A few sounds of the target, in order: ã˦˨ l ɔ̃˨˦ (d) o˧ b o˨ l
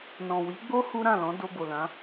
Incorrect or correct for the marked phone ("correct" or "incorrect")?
correct